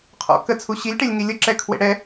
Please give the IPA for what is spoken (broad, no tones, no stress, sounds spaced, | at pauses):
qʰ ɔ̰ k ə t͡sʰ u ɕ i lʲ ʈ e lʲ ŋ i lʲ ə ǁ ɛ kʰ w ḛ ɽ ɛ